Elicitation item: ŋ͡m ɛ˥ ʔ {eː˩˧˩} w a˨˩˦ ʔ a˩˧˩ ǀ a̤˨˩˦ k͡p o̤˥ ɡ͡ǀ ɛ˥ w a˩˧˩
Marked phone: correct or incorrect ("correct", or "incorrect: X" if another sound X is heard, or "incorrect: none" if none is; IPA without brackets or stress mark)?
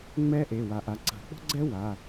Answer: incorrect: e˩˧˩